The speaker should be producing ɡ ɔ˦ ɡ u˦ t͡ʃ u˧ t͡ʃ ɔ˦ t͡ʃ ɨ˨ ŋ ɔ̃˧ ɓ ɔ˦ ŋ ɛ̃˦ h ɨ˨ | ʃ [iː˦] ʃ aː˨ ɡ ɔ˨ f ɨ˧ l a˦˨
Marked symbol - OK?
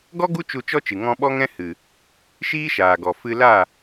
yes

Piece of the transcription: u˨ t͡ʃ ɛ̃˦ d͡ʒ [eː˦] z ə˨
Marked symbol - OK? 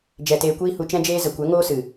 yes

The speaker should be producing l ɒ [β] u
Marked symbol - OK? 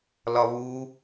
yes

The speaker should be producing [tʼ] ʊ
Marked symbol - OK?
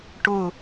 no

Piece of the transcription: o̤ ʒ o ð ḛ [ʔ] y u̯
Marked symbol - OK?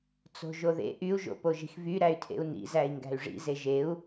yes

